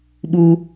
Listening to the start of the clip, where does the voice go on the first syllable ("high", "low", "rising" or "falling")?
low